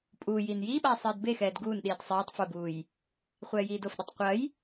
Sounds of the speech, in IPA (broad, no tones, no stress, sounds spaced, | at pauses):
pʼ uː j iː n j iː ɓ aː sˤ iː d b e x ɛː d ɡ uː n ɗ iː d sˤ iː tˤ f o b uː j | χʷ ɛː j iː d o f ɗ ɐ tˤ qʷ ɐ j